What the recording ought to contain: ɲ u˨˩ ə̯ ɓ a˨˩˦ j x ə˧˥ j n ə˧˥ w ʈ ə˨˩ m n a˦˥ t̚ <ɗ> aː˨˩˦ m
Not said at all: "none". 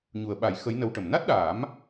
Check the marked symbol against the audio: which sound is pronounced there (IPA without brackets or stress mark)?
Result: ɗ